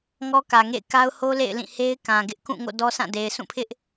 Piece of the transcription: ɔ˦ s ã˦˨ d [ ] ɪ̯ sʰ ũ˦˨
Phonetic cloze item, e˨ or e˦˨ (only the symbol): e˨